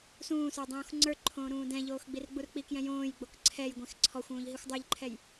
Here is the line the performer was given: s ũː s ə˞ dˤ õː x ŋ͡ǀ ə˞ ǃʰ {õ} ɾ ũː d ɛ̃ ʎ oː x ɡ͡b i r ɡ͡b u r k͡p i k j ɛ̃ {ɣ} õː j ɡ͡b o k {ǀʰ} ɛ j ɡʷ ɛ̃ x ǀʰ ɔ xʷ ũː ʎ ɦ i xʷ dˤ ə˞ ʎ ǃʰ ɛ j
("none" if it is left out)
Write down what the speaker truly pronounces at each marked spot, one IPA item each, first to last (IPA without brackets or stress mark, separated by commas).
õː, j, ǀʰ